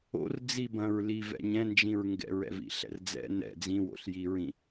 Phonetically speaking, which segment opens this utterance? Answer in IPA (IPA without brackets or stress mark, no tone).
o̰